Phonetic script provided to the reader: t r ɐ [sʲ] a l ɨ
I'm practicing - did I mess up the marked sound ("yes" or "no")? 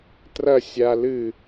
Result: no